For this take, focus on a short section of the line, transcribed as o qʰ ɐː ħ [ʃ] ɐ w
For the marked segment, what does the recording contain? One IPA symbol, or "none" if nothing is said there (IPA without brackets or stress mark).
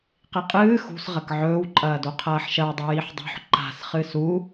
ʃ